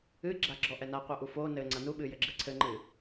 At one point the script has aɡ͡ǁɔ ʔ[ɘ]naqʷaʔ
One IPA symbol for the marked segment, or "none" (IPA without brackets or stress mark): ɛ